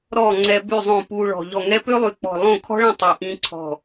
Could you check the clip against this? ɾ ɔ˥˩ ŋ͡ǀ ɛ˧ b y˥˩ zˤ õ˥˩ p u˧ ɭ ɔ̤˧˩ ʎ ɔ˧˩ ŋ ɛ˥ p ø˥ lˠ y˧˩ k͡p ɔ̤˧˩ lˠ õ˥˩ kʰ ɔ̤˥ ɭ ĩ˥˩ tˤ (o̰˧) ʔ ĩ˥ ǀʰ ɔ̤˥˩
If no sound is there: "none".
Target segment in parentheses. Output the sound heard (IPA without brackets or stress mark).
o˧